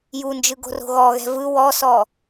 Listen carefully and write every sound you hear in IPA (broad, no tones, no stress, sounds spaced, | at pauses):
j u n d͡ʒ ɯ ɡ o̤ r o̤ ɣ ɔ ɣ ɛ̤ v ɯ w ɔ s ɔ